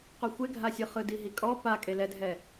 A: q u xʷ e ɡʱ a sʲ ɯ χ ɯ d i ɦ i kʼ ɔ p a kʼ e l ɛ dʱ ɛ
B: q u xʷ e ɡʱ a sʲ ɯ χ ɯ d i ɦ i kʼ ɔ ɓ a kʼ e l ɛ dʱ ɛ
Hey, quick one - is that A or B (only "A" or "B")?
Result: A